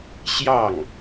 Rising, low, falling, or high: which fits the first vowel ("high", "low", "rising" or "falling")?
falling